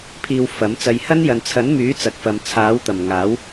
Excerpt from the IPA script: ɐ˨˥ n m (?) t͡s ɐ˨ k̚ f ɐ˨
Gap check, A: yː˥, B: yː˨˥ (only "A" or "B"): B